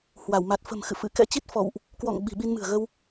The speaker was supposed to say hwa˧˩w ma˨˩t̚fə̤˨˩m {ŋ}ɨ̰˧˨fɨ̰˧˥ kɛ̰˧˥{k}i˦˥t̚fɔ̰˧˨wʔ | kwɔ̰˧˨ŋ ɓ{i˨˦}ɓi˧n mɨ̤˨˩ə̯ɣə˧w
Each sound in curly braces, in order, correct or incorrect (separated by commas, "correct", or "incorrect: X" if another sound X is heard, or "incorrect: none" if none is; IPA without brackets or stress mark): incorrect: x, incorrect: t͡ɕ, incorrect: i̤˨˩